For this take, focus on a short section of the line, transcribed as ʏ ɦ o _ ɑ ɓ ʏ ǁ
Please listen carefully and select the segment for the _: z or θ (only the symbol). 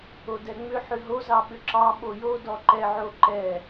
z